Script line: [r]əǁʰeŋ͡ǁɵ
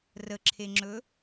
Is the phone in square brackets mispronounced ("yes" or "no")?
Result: no